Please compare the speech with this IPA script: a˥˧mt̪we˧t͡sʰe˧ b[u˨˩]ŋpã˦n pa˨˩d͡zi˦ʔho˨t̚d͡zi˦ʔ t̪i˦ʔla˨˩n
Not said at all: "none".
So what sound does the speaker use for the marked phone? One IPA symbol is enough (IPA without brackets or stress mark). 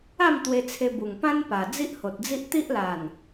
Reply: u˨˩